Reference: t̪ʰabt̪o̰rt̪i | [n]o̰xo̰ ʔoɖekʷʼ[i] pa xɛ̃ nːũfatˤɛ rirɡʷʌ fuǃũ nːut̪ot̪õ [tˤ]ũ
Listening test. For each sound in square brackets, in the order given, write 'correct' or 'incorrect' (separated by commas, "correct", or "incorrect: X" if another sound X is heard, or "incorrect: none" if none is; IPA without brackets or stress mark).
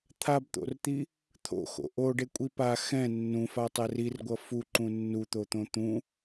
incorrect: t̪ʰ, correct, incorrect: t̪